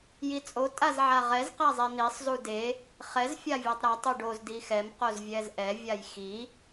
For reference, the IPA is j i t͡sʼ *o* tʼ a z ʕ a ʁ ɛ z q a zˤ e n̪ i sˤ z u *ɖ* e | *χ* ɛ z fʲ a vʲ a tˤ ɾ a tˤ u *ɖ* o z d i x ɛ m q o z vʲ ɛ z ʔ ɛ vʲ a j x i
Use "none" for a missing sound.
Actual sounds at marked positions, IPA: o, d, χ, ɖ

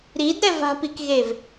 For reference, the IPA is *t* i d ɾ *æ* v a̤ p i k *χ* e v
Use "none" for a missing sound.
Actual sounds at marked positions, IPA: ɾ, ɛ, ɣ

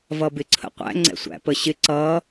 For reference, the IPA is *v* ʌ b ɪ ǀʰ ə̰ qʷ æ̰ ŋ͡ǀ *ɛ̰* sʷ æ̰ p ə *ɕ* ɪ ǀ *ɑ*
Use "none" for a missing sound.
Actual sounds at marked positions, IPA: v, ɛ̰, ɕ, ʌ

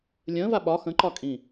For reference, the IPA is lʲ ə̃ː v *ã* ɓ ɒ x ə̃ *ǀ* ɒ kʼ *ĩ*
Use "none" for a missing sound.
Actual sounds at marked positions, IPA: a, ǃ, ĩ

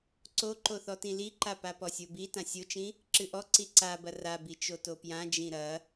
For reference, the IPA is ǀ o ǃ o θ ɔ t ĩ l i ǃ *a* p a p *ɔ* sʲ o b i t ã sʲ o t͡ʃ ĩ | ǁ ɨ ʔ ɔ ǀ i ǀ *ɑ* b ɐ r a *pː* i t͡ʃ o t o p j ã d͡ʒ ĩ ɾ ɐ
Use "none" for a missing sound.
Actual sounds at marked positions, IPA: a, ɔ, a, b

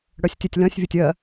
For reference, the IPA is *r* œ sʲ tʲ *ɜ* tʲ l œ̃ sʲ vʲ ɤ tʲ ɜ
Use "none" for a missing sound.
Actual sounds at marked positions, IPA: ɽ, ɜ

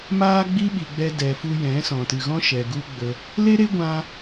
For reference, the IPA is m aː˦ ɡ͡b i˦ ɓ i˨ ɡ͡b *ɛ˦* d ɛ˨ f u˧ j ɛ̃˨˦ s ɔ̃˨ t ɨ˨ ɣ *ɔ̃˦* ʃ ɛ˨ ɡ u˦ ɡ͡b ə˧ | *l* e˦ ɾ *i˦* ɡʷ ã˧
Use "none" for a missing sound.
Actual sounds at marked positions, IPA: ɛ˧, ɔ̃˦, l, e˦

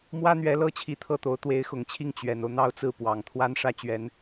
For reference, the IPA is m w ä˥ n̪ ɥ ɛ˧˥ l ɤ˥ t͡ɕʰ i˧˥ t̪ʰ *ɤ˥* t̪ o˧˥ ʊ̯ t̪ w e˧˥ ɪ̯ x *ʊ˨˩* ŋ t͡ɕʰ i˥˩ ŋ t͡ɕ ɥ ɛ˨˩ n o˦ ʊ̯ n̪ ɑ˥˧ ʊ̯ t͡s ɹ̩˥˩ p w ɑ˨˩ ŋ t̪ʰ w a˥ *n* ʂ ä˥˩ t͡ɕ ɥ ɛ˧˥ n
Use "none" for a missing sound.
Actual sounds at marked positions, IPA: ɤ˥˩, ʊ˨˩, n

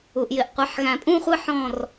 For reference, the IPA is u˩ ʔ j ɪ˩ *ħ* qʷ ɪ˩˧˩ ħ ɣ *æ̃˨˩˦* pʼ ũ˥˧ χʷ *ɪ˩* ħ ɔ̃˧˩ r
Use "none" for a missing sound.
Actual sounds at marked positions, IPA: ʔ, æ̃˨˩˦, ɪ˥˧

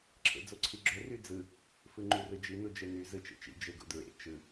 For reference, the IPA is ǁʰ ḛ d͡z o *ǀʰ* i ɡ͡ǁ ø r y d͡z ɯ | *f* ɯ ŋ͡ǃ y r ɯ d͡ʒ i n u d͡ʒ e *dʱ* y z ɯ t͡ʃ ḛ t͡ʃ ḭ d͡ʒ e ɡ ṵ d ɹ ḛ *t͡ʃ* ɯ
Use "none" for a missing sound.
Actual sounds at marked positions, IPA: ǀʰ, f, n, t͡ʃ

